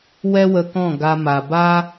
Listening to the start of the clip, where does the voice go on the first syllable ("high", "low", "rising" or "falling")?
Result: high